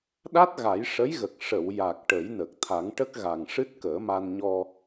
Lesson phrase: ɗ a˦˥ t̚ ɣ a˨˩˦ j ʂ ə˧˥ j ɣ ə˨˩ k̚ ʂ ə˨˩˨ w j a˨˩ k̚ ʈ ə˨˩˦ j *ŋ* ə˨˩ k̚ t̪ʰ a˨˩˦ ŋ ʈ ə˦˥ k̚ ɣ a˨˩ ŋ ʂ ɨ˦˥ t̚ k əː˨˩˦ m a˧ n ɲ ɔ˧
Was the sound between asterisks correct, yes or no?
no